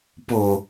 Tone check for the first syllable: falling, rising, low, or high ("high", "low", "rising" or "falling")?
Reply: low